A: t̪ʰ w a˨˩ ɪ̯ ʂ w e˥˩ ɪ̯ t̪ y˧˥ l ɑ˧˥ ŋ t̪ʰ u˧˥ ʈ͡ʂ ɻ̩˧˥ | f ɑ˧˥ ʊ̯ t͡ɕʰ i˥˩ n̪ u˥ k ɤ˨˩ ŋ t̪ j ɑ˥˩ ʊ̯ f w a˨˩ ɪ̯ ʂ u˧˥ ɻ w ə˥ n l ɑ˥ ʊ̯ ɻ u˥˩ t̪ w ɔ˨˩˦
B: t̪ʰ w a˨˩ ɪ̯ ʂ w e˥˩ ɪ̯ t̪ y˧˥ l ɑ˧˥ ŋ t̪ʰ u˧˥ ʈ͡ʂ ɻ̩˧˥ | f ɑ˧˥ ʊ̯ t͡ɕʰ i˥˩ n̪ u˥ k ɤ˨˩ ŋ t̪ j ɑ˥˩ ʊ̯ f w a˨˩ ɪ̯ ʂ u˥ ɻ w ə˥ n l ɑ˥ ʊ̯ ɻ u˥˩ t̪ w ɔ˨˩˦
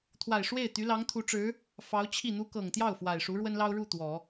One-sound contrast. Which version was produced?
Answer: A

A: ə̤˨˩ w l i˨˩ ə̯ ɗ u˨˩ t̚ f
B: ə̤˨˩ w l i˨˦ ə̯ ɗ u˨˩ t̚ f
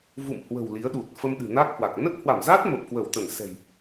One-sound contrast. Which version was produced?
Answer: B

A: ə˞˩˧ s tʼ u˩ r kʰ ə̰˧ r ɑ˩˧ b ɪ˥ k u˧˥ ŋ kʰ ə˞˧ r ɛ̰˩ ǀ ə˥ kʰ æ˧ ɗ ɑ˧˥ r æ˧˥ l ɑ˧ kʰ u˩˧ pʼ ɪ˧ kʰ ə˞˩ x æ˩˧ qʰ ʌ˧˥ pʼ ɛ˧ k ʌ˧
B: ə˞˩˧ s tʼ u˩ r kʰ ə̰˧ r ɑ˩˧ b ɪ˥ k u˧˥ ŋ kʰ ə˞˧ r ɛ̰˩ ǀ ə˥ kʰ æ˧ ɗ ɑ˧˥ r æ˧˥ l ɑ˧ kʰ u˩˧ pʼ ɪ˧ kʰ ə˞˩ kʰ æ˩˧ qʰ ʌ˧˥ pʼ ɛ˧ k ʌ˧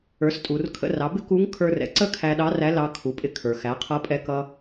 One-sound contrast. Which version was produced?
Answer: A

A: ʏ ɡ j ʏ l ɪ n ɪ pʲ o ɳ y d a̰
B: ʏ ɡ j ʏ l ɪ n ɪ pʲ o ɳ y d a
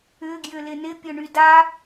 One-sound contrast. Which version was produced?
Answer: B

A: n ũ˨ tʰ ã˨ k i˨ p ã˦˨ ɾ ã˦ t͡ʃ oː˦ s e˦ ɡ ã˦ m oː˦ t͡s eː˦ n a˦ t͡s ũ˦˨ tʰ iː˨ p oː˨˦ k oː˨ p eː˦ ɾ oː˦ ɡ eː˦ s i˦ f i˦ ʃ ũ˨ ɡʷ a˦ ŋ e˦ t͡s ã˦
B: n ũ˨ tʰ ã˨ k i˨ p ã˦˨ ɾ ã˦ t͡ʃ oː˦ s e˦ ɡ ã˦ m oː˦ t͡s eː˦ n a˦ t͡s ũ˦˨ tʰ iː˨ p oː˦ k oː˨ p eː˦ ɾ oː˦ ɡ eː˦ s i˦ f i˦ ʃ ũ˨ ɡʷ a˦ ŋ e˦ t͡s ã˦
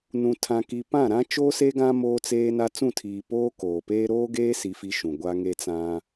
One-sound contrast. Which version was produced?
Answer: B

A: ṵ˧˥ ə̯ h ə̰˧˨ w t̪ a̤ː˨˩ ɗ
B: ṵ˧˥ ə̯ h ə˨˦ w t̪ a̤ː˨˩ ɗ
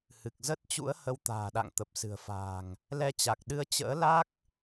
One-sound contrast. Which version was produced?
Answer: B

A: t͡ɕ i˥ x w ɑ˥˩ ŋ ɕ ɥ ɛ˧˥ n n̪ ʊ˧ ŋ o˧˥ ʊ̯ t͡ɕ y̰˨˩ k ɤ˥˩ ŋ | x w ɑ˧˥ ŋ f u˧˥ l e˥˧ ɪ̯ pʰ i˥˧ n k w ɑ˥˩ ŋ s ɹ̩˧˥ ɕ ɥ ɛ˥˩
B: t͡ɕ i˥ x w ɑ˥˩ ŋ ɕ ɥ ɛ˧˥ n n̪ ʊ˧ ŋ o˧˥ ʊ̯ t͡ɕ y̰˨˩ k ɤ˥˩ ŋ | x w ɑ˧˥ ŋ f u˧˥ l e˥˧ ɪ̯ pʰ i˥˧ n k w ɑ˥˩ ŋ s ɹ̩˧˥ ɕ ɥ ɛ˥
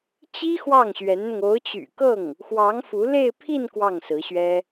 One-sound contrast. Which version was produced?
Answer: B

